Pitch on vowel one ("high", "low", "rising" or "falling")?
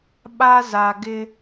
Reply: high